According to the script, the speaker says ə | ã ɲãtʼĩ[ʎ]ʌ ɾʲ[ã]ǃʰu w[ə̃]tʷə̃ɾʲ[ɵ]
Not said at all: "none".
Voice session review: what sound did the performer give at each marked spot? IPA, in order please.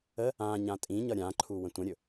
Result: ɲ, ã, ə̃, ɵ

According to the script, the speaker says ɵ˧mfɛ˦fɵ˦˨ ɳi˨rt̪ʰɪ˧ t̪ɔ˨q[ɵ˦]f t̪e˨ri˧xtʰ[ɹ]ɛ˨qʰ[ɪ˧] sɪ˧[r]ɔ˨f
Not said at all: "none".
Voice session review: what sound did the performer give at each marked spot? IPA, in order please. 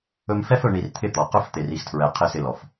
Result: ɵ˦, ɹ, ɪ˧, l

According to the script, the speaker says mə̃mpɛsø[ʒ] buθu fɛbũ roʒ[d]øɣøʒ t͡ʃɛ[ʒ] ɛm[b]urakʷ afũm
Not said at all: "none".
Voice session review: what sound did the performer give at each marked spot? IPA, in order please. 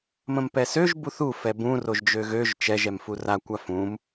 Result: ʒ, d͡ʒ, ʒ, f

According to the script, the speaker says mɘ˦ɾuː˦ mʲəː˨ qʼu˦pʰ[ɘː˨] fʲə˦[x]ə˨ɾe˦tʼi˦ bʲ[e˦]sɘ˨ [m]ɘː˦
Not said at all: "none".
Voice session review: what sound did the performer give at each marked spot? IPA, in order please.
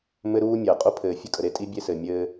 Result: ɘː˨, kʼ, e˦, mʲ

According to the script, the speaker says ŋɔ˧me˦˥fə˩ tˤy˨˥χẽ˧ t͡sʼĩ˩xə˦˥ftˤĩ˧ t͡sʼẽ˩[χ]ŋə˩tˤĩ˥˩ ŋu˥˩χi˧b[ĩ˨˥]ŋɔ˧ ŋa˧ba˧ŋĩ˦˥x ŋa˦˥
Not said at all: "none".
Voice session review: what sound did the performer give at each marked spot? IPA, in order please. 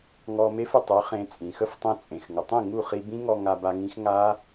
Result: x, ĩ˦˥

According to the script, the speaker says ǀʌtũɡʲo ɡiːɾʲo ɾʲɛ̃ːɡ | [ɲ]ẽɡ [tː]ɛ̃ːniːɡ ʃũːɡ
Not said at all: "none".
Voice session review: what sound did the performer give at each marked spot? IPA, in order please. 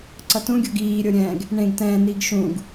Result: ɳ, t

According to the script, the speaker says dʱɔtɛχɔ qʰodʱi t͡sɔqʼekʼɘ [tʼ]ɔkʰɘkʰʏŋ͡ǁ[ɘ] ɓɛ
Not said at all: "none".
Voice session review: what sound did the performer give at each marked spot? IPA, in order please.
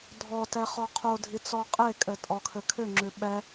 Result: tʼ, ʉ

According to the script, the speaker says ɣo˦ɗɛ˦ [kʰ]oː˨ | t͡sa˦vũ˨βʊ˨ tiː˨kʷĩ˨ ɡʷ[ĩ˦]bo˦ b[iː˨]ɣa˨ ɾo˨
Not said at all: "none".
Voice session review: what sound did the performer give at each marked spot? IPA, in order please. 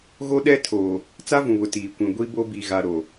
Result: tʰ, i˦, i˨

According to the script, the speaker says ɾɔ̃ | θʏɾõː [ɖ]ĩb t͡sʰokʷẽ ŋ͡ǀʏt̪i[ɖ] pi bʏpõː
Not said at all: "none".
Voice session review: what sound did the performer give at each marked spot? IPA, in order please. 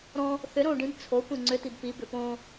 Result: ɖ, b

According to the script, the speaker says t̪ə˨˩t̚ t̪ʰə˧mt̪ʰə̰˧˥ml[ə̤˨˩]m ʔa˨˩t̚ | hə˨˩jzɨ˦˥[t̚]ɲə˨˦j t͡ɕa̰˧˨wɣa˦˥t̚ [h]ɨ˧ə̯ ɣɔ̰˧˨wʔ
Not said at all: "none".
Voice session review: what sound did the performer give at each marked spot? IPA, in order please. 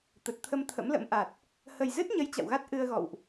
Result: ə̰˧˥, t̚, ʔ

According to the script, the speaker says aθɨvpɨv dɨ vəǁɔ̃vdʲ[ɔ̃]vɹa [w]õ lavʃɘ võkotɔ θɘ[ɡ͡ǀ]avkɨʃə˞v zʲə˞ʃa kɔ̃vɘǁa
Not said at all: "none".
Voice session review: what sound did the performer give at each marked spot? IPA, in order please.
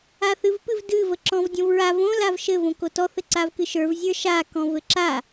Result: ɔ̃, v, ǀ

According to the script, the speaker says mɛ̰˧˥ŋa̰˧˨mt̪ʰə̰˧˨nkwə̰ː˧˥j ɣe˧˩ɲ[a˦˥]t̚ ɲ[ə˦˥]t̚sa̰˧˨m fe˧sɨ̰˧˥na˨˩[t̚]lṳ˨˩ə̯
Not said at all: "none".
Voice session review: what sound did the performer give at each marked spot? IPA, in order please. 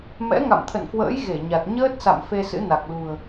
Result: a˨˩, əː˦˥, k̚

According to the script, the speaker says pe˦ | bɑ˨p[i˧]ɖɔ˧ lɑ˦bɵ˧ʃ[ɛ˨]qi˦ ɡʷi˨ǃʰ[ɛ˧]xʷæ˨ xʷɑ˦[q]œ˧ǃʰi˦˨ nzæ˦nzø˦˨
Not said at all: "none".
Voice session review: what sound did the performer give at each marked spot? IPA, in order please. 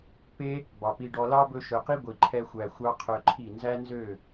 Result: i˧, œ˨, ɛ˧, qʰ

